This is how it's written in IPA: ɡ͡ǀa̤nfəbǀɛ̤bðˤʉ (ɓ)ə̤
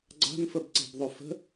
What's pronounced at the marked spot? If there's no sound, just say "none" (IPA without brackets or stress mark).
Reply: f